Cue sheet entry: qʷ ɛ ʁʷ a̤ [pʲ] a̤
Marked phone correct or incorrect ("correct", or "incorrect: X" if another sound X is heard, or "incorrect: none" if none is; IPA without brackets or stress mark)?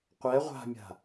incorrect: mʲ